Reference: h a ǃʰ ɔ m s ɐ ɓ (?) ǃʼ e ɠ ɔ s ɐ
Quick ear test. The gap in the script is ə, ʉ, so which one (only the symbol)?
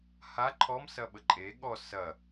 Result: ə